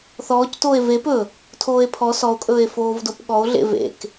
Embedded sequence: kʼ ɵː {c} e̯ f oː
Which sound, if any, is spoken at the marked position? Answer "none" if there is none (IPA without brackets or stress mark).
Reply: none